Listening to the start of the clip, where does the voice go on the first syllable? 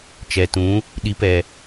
low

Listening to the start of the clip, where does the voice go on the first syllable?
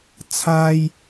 high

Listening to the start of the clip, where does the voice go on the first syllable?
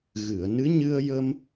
low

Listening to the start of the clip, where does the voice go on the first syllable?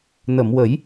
low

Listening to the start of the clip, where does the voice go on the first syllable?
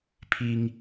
high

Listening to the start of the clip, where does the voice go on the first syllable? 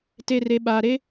low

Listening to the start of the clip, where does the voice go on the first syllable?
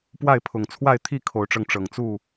falling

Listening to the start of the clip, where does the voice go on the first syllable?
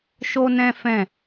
high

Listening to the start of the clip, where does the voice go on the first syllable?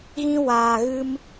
high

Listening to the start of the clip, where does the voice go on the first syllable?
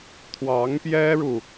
rising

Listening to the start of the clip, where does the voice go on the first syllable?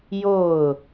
falling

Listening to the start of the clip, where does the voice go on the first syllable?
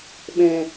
low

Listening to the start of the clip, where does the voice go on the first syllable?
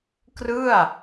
falling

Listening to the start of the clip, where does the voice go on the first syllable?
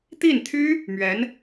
falling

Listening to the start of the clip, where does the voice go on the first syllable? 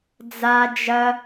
high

